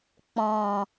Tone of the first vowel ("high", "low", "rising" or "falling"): low